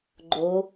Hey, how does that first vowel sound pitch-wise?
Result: rising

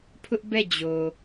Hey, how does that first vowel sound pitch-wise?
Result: high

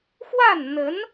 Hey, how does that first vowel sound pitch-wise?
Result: falling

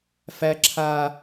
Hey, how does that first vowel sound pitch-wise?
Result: high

